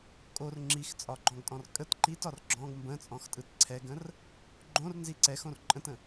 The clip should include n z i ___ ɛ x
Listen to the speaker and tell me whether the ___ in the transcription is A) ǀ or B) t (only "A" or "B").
A